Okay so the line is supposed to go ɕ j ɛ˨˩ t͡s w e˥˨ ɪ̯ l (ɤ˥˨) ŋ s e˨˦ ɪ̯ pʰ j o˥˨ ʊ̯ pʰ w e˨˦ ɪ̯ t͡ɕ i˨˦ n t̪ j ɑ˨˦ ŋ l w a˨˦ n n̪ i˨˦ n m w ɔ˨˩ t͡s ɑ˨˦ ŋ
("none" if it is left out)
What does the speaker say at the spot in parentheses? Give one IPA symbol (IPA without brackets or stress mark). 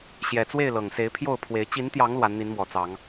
ɤ˨˩